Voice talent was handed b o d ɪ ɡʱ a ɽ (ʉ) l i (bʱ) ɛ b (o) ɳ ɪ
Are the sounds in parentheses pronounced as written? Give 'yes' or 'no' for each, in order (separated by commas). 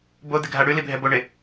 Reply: yes, yes, yes